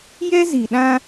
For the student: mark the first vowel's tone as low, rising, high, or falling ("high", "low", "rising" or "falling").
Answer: high